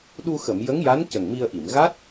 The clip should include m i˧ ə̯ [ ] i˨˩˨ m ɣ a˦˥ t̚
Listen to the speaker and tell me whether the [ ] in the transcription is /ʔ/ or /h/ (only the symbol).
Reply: ʔ